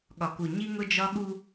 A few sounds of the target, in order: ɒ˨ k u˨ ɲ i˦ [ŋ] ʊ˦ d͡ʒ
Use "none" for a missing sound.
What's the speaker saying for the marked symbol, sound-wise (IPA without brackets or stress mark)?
ŋ